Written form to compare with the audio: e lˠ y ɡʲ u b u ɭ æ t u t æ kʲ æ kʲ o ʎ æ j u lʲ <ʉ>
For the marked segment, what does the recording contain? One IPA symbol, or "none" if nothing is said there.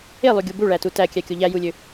ø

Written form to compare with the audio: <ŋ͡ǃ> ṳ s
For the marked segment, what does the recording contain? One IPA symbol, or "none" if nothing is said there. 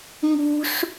ŋ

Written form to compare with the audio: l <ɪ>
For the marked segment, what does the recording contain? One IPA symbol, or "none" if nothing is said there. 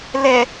ɛ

